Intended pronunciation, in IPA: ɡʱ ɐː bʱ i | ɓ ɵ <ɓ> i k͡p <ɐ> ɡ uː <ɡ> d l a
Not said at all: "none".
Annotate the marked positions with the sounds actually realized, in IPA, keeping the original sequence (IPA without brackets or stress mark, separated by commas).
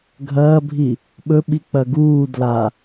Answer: ɓ, ɐ, none